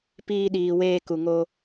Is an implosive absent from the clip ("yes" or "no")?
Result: no